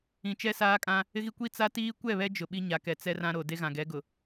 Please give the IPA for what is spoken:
ĩ˨ t͡ʃ ɛ˦ s aː˦ kʼ ã˦ | ɪ˦ ɣ i˦ kʷ i˦ t͡s a˦ t iː˦ kʷ ɛ˦˨ β ɛ˦ d͡ʒ ʊ˨ ɓ i˦ ɲ a˨ k ɛ˨ t͡s ɛ˦ r ã˦ ɾ o˨ d e˦ ɣ ã˨ ɡ ɛ˨˦ ɡ ʊ˨

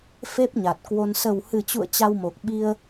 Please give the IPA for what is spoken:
f e˦˥ p̚ ɲ a˨˩ t̚ k w o˧ n s ə˨˩ w h ɨ˨˩ t͡ɕ ṵ˧˨ ə̯ t͡ɕ a˧ w m o˨˩ k̚ ɓ i˧ ə̯

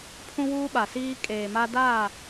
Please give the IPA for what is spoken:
pʰ ũ˦ w uː˦ ɓ a˨ s iː˦ kʼ eː˨ m a˦ d aː˦˨

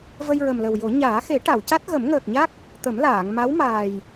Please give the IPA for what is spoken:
v ə˧ j ɹ ə˨˩ m l ə˨˩ w j o˨˩˦ ɲ aː˨˩˦ x e˨˩˦ ʈ a˨˩˨ w c a˦˥ t̚ ɣ ə˨˩˦ m ŋ əː˨˩ k̚ ɲ a˦˥ k̚ | t̪ ə˨˩˦ m l aː˨˩˨ ŋ m a˧˥ w m aː˨˩ j

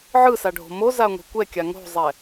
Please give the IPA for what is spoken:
ʕ ɯ s a ɖʱ o̤ m o z a ŋʷ e̤ kʷ ɛ kʲ a ŋ o̤ zˤ ɛ

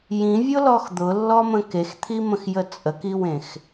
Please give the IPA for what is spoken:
j ĩ vʲ ʊ l ɔ x d̪ ʊ lː ɔ m ə̃ k e x t̪ʰ i m ə̃ x j ə t͡sʼ ə k i w ẽ x

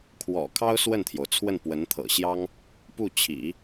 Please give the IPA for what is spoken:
kʰ w ɔ̰˨˩ kʰ ɑ˥ ʊ̯ s w ə˥˩ n t̪ʰ j o˩ ʊ̯ t͡sʰ w ə˥˩ n p w ə˧˥ n t̪ʰ ɤ̰˨˩ ɕ j ɑ˥ ŋ | p u˥˩ t͡ɕʰ ḭ˨˩˦

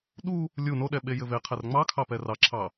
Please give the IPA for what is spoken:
ɗ u | lʲ u n o ɗ ɛ ɓ e j ɘ v e qʰ ɛ r ŋ͡m ɑ kʰ ɑ p ɛ r ɑ ǁʰ ɑ

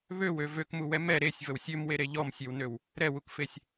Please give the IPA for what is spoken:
β ø w ø v ø k m u w ɛ m ɛ ɾ e sʲ v ə w sʲ ø m w e ɾ e ʎ ɔ m sʲ e w n ø w | ɾ ɛ w u k f e sʲ

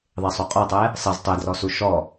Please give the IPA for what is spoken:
ðˤ e sˤ o qʼ ɔ tˤ ɛ | sˤ ɘ z tˤ ɘ d r ɔ s u ʃ ɔ

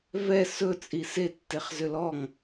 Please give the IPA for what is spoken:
v ɛ s ɵ t͡sʼ i s e tː e χ z ʏ l ɔ ŋ

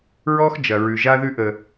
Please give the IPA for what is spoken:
ɹ ɔ˦ x d͡ʒ ɐ˨ ɹ ʉ˨ ʒ a˦ ð ʉ˦ ʔ ə˦

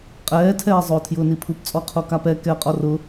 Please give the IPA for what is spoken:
qʼ ɛː tʰ ɛː zˤ ʊː tʰ j ʊː n i pʰ u p t͡sʼ ɔ qʰ o k a p ɛ k ɛ qʼ ɔ r ʊ

